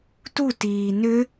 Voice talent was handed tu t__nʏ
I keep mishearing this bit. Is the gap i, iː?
iː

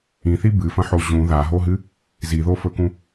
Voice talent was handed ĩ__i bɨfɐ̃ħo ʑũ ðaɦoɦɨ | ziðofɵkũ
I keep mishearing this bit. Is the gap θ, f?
θ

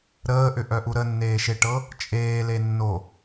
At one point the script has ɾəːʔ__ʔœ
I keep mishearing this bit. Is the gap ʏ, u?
ʏ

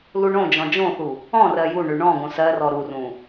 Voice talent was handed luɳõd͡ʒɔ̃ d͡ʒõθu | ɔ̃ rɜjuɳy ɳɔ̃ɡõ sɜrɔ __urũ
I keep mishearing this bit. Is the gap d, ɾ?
ɾ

